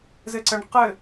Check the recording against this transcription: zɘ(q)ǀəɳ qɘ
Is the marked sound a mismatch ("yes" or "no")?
yes